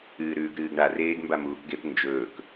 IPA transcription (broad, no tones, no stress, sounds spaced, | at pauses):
ɨː ɾ ʉː ɡ ɾ ɨː ɡ ɳ a r eː ɡ m b a m uː k ɡ e p n d͡ʒ ɵː k